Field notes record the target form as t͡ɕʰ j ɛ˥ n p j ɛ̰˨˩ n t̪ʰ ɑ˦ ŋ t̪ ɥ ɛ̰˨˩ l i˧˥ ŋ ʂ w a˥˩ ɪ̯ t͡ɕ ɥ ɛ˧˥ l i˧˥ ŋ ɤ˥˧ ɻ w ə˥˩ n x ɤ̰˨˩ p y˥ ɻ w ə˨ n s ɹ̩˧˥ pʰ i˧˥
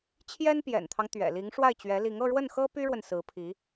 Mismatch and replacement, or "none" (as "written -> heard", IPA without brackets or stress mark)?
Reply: ɤ̰˨˩ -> ɤ˥